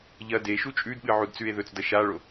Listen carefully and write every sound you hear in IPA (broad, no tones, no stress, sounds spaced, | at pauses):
ʎ ɐ d e ʃ u t͡ʃʼ ʉ d ɓ ɨ ʕ u d t͡s ʉ e̯ ð ɵ t͡s d ɐ ʃ a ɭ o